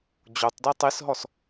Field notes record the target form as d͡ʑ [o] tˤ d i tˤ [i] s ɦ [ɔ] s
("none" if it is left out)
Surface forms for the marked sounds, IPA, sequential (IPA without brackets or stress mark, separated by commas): o, i, ɔ